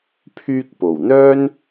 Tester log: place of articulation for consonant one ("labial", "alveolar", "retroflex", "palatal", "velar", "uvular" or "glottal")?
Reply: labial